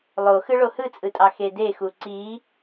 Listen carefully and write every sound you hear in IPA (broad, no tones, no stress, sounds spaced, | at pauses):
lˠ o x ɯ ɭ o h ɯ t͡sʼ ɯ tʼ ɑ x e d e x u ǀ i